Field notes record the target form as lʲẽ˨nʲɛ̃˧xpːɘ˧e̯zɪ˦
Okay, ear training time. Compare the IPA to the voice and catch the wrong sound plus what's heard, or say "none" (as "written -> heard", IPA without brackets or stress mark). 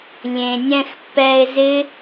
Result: ɘ˧ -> ɛ˧